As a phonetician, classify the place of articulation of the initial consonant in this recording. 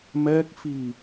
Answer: labial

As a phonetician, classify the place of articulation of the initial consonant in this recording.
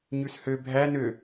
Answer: palatal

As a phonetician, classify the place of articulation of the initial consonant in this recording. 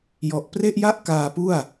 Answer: palatal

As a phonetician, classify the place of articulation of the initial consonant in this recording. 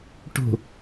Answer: retroflex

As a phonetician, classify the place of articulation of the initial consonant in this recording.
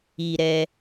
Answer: alveolar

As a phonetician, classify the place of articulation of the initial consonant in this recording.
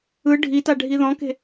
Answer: retroflex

